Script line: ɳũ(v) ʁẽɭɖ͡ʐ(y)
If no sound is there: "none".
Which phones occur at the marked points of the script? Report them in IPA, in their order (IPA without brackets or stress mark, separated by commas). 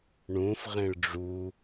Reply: f, u